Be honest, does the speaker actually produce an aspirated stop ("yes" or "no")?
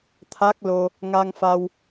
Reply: yes